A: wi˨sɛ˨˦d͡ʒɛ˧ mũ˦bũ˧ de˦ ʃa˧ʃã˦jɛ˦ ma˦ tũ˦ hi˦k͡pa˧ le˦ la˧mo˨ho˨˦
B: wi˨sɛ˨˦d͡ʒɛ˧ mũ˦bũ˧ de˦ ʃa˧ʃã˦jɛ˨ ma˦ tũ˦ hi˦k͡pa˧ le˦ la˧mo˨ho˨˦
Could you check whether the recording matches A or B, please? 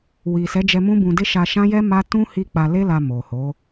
A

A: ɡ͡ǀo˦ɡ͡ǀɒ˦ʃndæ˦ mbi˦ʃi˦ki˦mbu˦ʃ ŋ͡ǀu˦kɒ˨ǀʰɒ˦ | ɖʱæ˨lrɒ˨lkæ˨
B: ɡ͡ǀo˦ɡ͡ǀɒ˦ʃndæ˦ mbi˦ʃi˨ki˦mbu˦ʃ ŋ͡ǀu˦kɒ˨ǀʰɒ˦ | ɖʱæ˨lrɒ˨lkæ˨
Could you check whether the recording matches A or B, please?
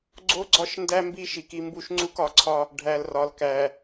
B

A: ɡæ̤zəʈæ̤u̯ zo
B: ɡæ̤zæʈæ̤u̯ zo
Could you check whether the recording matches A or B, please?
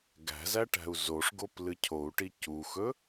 B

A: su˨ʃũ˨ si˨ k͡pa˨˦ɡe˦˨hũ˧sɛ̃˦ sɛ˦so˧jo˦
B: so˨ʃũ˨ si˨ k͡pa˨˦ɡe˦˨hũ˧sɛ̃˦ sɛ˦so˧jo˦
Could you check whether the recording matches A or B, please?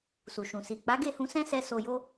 A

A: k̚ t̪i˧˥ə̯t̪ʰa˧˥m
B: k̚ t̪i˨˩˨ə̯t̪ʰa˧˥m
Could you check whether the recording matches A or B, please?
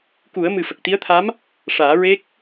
A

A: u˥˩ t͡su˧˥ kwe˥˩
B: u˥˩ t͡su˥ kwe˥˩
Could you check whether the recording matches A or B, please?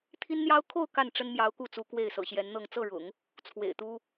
A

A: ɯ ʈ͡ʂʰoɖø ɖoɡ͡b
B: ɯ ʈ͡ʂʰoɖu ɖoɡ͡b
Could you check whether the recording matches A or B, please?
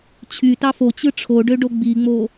A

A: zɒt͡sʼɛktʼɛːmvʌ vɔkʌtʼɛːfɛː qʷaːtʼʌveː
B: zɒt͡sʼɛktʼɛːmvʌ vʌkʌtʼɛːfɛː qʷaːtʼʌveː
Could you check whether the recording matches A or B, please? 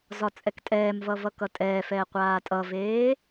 B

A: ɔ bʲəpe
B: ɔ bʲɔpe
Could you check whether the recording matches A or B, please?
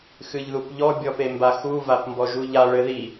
B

